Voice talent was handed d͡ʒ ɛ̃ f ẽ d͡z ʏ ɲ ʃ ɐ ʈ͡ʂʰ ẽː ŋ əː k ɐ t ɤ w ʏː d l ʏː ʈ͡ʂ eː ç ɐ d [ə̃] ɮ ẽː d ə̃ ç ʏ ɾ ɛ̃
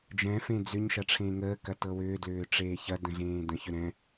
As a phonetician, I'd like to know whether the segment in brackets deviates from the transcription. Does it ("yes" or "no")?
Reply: no